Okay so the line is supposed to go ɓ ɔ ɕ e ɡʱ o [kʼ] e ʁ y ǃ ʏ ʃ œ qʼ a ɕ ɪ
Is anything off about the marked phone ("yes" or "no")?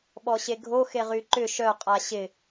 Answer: yes